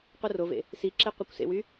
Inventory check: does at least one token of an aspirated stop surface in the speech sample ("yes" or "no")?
no